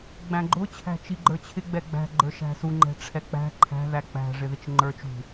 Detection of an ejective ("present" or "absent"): absent